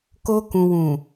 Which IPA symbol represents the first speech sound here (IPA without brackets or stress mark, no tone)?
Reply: k